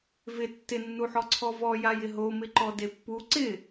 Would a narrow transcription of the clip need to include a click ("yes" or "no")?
yes